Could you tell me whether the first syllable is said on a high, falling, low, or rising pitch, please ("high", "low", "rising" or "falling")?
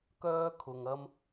high